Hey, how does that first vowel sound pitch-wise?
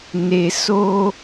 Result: low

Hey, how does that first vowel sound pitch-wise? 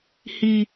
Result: high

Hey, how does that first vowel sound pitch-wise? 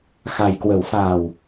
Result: low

